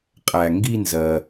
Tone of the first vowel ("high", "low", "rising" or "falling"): low